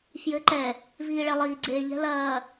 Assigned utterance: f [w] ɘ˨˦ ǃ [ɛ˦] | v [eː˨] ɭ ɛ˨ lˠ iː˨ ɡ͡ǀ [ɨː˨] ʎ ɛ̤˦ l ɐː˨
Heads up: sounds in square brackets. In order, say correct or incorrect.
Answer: incorrect: j, incorrect: ɛ˨, incorrect: iː˨, incorrect: eː˨

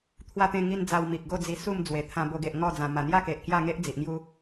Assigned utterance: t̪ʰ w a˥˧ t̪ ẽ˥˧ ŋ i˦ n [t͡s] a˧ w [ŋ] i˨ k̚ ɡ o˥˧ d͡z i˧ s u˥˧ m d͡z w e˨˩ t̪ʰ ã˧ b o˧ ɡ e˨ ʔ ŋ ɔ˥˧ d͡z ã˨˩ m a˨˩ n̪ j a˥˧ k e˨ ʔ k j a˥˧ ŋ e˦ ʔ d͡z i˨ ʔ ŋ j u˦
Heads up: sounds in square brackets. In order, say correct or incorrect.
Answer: incorrect: d͡z, incorrect: m

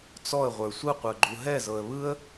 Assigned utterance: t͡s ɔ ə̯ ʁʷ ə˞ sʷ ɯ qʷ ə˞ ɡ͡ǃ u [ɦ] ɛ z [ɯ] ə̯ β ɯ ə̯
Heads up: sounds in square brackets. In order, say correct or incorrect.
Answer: correct, incorrect: ɤ

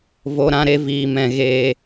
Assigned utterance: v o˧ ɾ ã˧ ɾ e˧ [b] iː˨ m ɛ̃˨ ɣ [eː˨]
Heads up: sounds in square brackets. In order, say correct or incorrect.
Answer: incorrect: v, correct

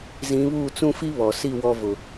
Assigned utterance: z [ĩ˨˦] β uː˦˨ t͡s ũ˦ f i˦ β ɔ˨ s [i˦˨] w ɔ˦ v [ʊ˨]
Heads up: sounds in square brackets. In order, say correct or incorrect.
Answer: correct, correct, correct

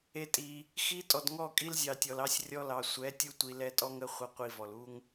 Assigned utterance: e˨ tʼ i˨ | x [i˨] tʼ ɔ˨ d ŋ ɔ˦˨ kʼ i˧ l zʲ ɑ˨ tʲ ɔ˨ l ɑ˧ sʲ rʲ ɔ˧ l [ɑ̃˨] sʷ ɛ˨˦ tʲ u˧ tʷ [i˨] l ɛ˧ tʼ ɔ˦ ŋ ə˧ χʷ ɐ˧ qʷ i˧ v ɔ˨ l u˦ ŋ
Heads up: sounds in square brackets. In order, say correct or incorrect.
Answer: incorrect: i˧, incorrect: ɑ˨, correct

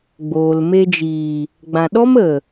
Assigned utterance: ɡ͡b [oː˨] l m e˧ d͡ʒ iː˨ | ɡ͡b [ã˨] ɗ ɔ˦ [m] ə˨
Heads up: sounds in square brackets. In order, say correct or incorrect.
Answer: correct, correct, correct

